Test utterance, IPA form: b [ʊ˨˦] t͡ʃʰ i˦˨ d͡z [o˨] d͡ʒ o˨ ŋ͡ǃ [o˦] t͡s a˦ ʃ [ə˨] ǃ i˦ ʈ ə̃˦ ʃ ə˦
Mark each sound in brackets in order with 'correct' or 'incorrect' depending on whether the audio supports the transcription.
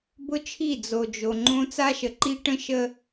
incorrect, correct, incorrect, correct

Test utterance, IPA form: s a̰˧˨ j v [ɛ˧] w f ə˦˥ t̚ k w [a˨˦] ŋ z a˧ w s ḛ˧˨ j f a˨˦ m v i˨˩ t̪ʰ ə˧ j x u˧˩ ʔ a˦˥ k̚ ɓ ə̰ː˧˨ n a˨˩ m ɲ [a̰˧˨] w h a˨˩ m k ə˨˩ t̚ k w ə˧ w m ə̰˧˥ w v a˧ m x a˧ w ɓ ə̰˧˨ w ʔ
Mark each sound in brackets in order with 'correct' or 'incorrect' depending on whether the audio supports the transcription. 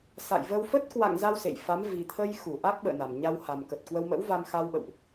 incorrect, incorrect, incorrect

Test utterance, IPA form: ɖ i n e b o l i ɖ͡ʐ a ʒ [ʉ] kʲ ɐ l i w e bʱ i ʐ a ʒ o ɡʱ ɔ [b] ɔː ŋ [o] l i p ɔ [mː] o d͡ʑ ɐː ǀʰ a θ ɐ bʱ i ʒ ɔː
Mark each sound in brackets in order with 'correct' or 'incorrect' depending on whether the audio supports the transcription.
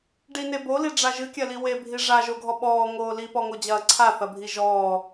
incorrect, incorrect, incorrect, incorrect

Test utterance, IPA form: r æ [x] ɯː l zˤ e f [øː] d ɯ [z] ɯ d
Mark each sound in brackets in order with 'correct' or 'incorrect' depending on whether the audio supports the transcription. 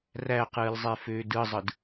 incorrect, correct, incorrect

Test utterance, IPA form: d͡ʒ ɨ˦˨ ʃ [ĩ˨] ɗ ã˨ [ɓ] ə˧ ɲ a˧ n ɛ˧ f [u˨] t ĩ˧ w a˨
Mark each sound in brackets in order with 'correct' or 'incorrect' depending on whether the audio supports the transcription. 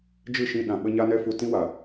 incorrect, correct, correct

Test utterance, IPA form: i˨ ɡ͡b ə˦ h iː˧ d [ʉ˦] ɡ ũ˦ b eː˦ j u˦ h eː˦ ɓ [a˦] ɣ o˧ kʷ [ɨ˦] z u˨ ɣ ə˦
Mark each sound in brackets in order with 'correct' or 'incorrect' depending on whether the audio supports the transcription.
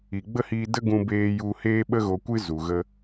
incorrect, incorrect, correct

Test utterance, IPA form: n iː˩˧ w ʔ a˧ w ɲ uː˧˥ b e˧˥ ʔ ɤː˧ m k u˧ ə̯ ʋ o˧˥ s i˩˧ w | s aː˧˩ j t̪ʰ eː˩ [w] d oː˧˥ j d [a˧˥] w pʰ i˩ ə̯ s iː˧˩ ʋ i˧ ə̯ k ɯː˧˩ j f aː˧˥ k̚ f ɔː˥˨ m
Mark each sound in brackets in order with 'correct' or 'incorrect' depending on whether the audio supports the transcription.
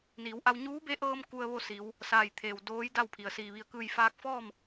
correct, incorrect

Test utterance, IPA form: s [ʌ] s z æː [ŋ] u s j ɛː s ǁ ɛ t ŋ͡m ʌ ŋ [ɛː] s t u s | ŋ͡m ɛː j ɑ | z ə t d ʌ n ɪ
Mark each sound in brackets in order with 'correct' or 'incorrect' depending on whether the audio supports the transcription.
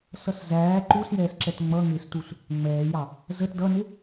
correct, incorrect, incorrect

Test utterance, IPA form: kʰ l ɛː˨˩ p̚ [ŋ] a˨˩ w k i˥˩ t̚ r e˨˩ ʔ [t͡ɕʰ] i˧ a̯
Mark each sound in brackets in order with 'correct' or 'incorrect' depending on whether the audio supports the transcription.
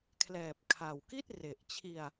incorrect, correct

